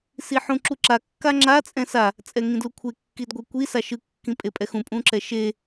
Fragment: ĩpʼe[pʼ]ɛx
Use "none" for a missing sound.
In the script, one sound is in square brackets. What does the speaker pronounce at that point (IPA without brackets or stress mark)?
pʼ